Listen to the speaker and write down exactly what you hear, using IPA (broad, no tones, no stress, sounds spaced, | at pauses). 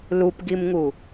l u p ɡ i m ŋ u